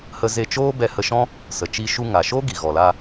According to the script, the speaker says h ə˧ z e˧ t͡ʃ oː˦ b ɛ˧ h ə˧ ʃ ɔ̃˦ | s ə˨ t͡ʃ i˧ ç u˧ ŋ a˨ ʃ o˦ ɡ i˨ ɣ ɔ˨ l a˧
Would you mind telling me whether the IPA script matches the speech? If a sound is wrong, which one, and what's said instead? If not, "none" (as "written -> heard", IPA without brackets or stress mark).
ç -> ʃ